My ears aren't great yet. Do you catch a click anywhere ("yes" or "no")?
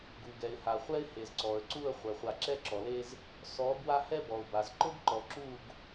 yes